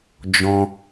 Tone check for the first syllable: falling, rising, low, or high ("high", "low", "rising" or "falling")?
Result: high